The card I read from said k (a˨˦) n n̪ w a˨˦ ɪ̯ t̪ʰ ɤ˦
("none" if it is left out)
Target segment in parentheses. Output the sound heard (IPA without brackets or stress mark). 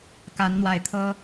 a˨˦